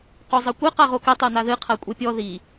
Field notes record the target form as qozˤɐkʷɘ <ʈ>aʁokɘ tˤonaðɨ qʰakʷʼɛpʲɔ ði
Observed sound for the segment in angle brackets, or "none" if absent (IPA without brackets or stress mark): q